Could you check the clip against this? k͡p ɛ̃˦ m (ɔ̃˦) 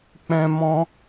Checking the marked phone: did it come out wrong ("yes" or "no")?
no